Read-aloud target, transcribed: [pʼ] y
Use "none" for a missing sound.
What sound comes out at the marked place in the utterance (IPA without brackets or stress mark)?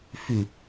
f